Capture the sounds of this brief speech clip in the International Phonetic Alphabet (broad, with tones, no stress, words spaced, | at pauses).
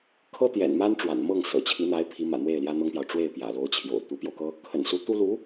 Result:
kʰɤ˥t̪jɛ̰˨˩nma˥n ʈ͡ʂwa̰˨˩nmɤ˥˩ŋ sɤ̰˨˩t͡ɕʰi˧˥n̪a˧˥ɪ̯ pʰi˧˥mä̰˨˩ n̪we˥˩ɪ̯ljä˥n̪ɤ˥ŋpjɑ˨ʊ̯ ʈ͡ʂwe˥˩ɪ̯pjä̰˨˩lo˧˥ʊ̯t͡ɕʰjo̰˨˩ʊ̯ t̪u˧˥pjo˧ʊ̯kɤ˥ | kʰə̰˨˩nsu˧˥t̪u˥ lu˧˥